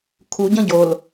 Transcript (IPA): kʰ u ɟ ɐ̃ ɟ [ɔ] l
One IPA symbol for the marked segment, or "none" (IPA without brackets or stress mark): o